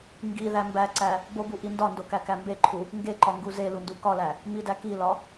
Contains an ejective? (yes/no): no